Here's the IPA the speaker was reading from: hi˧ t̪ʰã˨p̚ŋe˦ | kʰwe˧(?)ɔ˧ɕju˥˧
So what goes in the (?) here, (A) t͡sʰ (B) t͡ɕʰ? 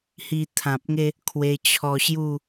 B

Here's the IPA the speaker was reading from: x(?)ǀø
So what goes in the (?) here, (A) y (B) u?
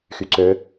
A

